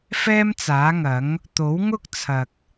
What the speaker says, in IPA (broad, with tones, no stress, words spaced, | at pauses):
fɛː˥mt͡saː˨˥ŋɐ˨˥ŋ | t̪o˨˥wŋʊ˥k̚ t͡sʰɐ˨k̚